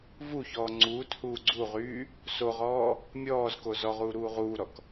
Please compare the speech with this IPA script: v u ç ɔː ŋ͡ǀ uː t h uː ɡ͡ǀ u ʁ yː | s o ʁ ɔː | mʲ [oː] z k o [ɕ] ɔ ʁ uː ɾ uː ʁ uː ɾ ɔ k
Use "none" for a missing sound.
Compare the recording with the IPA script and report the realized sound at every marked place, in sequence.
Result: ɔː, z

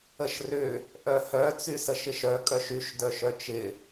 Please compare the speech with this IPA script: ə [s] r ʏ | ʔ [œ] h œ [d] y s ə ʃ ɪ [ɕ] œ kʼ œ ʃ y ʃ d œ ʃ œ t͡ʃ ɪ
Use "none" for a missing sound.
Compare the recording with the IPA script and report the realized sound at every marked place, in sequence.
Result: ʃ, œ, t͡s, ʃ

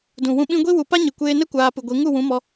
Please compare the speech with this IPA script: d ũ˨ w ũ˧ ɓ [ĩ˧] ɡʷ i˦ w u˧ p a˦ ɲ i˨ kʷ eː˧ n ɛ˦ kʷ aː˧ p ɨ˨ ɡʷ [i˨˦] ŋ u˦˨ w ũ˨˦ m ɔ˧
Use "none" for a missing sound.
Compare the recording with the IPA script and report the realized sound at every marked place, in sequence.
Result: ĩ˧, i˨˦

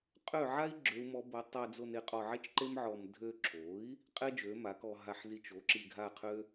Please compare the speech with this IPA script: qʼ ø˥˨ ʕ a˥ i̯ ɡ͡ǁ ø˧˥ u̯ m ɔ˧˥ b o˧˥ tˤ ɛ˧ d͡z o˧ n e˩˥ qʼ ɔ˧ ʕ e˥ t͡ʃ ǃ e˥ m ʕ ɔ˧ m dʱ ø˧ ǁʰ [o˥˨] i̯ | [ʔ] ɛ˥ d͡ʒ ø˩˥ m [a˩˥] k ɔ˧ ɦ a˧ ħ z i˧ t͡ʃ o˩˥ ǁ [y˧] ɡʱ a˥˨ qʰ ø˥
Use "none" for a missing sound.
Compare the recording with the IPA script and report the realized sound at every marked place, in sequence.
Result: o˩˥, qʼ, a˩˥, i˧

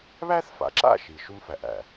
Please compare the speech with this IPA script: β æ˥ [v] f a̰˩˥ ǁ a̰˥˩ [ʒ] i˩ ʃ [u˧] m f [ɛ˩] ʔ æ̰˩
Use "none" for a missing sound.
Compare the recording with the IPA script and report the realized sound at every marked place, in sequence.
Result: θ, ʃ, u˧, æ˩

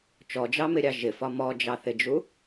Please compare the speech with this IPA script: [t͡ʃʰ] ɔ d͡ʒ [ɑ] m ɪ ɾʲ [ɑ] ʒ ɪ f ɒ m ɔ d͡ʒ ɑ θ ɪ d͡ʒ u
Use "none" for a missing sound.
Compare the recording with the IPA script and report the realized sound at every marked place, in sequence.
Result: t͡ʃ, ɑ, ɑ

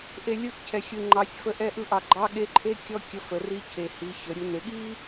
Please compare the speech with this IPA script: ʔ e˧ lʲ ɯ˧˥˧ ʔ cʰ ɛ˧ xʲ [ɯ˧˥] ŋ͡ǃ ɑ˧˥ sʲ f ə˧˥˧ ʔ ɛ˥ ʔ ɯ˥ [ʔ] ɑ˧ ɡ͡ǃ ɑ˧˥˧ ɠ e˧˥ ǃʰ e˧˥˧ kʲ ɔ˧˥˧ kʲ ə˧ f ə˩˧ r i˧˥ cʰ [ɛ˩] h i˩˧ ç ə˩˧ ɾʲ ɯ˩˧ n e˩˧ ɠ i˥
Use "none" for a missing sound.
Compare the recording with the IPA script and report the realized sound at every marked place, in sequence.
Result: ɯ˧, ʔ, e˩

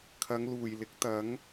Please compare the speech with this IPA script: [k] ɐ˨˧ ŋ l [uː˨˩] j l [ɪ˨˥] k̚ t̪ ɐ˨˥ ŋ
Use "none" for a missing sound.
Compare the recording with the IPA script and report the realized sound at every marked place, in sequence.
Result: kʰ, uː˨˩, ɪ˨˥

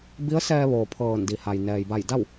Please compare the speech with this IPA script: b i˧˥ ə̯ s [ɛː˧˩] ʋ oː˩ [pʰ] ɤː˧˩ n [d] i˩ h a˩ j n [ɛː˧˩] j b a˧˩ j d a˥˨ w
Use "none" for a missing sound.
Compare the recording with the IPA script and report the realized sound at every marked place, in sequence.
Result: ɛː˧, pʰ, d, ɛː˩

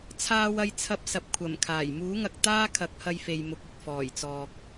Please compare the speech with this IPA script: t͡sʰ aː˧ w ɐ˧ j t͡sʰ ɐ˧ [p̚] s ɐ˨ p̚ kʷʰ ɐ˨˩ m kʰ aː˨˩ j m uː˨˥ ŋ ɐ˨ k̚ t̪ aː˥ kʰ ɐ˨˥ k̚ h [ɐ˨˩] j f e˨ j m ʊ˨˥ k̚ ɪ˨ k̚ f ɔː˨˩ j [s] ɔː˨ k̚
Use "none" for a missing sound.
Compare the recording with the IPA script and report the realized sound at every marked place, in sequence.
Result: p̚, ɐ˧, t͡s

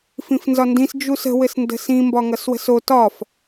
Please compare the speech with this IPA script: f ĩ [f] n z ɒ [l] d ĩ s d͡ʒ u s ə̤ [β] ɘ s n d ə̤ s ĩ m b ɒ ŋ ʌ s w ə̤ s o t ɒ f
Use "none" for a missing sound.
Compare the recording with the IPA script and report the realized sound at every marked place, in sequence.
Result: f, n, w

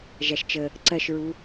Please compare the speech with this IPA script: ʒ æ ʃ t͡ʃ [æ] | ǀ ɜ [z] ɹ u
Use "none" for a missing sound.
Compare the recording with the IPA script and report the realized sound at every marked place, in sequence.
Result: ə, ʃ

